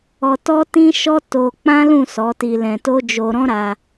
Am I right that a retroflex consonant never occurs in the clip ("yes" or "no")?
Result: yes